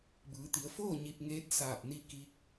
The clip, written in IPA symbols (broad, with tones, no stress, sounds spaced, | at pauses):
b ɯː˩˧ t̪ i˩˧ ə̯ f oː˥˨ ɲ i˧ p̚ ŋ eː˧˥ t̚ s aː˧˩ p̚ n i˧ k i˧˥ k̚